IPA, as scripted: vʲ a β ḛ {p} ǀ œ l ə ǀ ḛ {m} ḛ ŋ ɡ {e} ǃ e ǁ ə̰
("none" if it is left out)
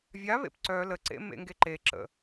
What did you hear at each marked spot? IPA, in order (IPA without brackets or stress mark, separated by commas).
p, m, e